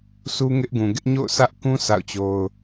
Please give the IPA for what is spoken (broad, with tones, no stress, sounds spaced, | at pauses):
sʰ u˦ ŋ ɪ˦ ʔ ɡ ũ˨ ɡ ɪ˦ ʔ ɲ o̰˦˨ ʊ̯ s ä˦ ʔ k ũ˦ sʰ a̰˦˨ ʊ̯ t͡ɕ o˦ ʊ̯